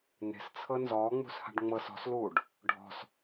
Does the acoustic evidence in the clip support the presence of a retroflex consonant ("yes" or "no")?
yes